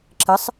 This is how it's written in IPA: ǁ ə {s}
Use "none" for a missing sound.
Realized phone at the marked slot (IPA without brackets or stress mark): sˤ